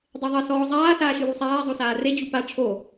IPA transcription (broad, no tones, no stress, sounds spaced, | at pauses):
dˤ e ðˤ ɐ s ɔː zˤ aː s aː ʃ ɨ w u sˤ aː zˤ o s aː r e d͡ʑ u p a ʈ͡ʂʰ o